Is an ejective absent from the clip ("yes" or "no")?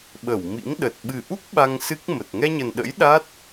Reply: yes